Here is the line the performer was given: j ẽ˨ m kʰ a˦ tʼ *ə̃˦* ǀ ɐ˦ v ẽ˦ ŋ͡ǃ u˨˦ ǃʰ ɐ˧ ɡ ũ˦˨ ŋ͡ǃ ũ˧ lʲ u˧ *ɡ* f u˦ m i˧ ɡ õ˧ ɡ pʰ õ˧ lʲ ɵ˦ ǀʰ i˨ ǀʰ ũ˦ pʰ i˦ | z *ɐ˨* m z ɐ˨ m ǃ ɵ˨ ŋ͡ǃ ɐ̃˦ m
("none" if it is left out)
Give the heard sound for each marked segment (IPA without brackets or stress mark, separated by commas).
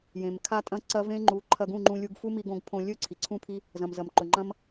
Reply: ɐ̃˦, ɡ, ɐ̃˨